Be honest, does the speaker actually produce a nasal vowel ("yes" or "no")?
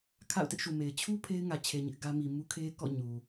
no